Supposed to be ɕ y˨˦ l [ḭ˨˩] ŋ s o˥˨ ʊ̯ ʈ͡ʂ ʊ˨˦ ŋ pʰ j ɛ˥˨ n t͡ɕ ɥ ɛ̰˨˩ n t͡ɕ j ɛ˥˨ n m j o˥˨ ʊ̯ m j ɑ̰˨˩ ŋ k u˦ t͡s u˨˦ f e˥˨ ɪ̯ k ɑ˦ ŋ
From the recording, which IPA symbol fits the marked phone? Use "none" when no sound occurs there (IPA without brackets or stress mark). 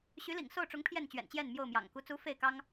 ḭ˨˩